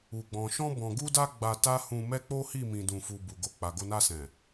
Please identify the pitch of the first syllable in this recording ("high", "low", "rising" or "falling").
low